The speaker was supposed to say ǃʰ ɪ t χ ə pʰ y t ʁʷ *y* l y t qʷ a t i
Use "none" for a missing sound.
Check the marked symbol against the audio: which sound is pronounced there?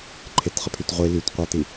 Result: i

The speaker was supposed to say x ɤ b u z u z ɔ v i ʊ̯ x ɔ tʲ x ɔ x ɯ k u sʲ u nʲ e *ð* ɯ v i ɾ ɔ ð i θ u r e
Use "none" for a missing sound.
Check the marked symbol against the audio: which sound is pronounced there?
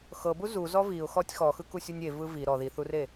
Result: v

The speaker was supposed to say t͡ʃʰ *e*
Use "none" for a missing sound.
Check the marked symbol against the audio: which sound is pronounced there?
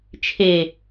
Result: e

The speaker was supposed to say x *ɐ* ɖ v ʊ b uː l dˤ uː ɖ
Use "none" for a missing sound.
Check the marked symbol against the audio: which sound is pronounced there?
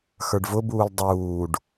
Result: ə˞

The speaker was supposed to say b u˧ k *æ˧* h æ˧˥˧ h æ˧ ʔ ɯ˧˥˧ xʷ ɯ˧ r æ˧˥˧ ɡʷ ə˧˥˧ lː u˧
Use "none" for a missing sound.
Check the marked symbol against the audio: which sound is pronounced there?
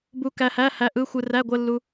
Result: æ˧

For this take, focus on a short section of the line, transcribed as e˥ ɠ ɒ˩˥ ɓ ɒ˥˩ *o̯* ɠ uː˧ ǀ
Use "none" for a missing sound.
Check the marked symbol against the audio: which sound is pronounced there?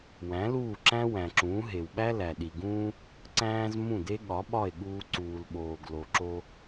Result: e̯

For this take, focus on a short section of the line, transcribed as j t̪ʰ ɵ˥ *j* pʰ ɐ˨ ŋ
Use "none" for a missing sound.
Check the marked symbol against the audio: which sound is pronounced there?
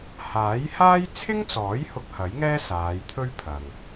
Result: ɥ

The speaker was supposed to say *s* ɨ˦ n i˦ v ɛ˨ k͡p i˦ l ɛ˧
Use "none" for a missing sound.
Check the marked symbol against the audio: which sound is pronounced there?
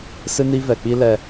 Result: s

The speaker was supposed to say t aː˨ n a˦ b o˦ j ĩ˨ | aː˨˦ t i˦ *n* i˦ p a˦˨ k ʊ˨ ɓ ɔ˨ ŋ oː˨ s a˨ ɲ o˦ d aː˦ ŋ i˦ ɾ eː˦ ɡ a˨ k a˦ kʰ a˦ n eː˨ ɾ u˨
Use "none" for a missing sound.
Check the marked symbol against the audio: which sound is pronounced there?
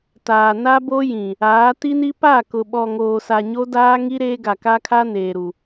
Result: n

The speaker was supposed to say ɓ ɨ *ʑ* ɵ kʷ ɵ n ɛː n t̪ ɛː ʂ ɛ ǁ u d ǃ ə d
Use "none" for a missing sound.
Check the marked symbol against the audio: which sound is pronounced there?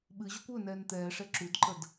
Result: ʑ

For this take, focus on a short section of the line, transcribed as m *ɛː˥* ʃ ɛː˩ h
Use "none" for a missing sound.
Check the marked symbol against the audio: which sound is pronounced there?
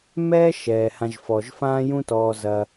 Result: ɛː˥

